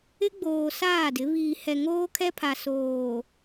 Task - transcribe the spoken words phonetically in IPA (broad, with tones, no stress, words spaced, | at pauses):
ɪ˦ɡ͡boː˨ saː˦˨dɪ˨˦ βiː˨hɛ˨ ŋoː˦kʰɛ˦pʰa˨ soː˨